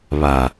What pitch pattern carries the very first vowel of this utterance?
low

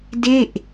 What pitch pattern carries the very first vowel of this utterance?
falling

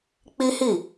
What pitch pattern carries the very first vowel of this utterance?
high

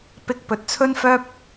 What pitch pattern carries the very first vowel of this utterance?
high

